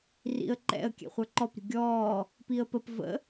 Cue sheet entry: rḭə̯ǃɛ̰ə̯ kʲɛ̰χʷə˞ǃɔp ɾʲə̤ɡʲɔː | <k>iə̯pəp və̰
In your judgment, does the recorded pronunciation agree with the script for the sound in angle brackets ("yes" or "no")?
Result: no